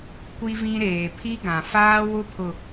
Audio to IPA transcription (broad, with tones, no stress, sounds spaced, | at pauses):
kʷ i˦ v ĩ˦ ɾ eː˨ pʰ i˦ ɡ ã˨ f aː˦ w ʊ˦ pʰ ʊ˨